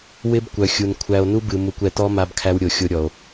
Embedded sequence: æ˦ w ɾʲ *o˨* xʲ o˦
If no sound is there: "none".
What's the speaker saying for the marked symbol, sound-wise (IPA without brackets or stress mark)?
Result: o˨